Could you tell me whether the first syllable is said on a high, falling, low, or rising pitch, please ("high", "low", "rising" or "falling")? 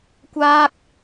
high